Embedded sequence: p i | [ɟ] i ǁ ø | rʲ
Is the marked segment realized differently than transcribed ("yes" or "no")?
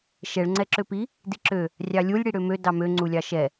yes